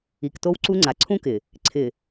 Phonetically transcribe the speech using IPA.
i˨kto˦wǀu˦ŋ͡ǀa˨ ǀʰũ˦kɪ˨ | ǀʰɪ˨

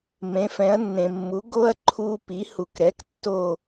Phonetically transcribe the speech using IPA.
mẽ˨˥fɛ̃˨˥ɐ̯ nːẽ˨mːu˨˥ ɡo˦ɐ̯ ǃʰu˦pi˨˥ hu˨k ɾɛ˨˥k tːo˦˨

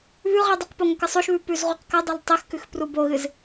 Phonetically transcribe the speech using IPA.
βʉʁi dˤɐqpo ŋɵkɨsˤoʃβʉ pʉzʁuqkɐdˤal tˤixkʉx pruboɣɨz

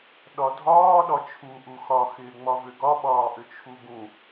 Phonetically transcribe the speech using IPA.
ɗɒdʱɒː ɗɒt͡ʃʰu ʔuxɒ xɪːŋ͡mɒvʏɡɒ ɓɒːʔʏt͡ʃʰuɡũ

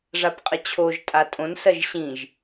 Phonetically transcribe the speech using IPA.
ʐapqʼət͡ɕʰoʒ tʼatʼõn sɜʒɕĩʒ

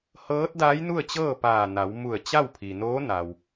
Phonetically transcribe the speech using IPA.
hɤː˧˥t̚daː˧˥jnu˥˨ə̯t͡ɕɤː˥˨ paː˧˩na˩˧w mu˧˩ə̯t͡ɕa˥˨wpʰi˩ noː˧˥na˩w

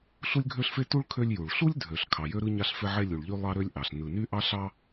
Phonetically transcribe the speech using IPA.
ɬu˥lʲɡʱø˥ɬfe˥ tu˥ɭ kʰø˥lʲju˩ɭ ɬu˥lʲdʱø˩ɬ kʰɑ˩jø˥ɾɯ˥ ɲɑ˥ɬfe˥ʕe˥ lʲu˩ɭʎy˥ lˠɑ˥ɾø˥lʲʔɑ˩ɬ nɯ˩ny˥ʔɑ˥ ɬɑ˥

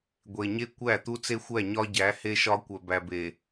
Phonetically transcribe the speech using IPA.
ɡʷe˨ɲe˦ kʷæ˦˨ t̪u˦t͡se˦xʷæ˦˨ ɲɒ˦ɟæ˨˦ he˦ʃɒ˦ kʷœ˨bæ˨be˨

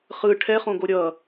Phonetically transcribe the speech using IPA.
χɯ ʈʰɛχõɡo ɾʲʌ

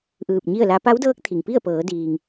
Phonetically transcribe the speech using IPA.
ʔɯː˧˩p̚ɲi˥˨ə̯la˧˥ pa˧˥wdɤː˧˥k̚ t̪ʰi˩ŋpi˥˨ə̯pɤː˩˧ diː˩ŋ

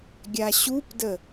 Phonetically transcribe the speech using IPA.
ɡʲaɕupdə

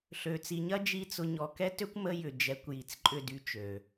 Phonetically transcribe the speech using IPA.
ɬø˨t͡si˨ɲɐ˦ d͡ʒi˦t͡sʊ˧ ɲɔ˨kɛ˦tø˦kʷ mə˧jʏ˨ d͡ʒɛ˨˦kʷji˨t͡sǃʼʏ˦˨ dy˦t͡ʃø˨

